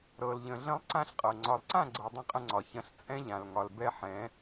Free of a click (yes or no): no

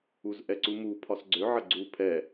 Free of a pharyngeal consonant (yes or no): no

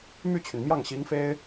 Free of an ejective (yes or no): yes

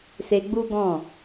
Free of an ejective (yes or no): yes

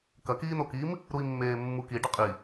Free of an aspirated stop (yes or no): yes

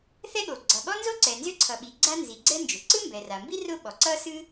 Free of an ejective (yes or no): yes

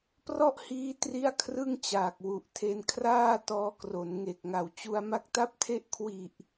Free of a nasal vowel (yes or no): yes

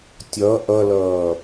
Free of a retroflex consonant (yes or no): yes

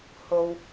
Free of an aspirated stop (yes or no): yes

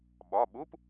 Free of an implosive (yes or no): no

